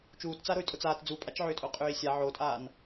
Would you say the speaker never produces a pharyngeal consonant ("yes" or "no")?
no